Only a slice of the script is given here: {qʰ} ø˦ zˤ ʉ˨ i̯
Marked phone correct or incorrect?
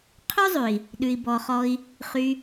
correct